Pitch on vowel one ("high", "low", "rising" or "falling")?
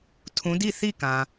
rising